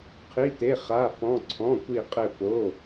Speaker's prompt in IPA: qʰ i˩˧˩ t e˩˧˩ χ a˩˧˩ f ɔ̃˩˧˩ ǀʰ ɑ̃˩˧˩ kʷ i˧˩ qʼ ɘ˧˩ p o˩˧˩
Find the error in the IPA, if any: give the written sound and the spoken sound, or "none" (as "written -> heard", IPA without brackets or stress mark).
ɑ̃˩˧˩ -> ɔ̃˩˧˩